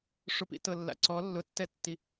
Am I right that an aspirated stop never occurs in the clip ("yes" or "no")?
yes